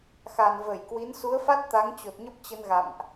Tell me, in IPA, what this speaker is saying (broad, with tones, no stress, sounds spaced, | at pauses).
x a˨˩ n v ə˧˩ j k w i˨˦ n s u˨˦ ə̯ f a˦˥ t̚ t̪ a˨˦ ŋ t͡ɕ o˨˩ t̚ ɲ ə˦˥ p̚ t͡ɕ ə˧ n ɣ a̰˧˨ m ʔ